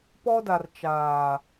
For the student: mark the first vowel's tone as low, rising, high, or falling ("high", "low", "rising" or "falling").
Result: high